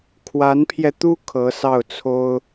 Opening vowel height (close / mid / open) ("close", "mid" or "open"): open